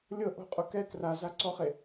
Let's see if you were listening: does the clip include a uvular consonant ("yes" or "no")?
yes